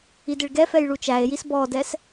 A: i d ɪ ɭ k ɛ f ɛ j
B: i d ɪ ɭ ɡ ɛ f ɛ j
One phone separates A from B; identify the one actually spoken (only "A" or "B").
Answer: B